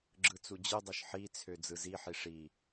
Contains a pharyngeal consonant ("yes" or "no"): yes